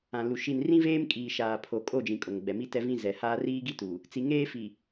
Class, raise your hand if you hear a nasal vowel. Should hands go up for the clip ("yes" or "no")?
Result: yes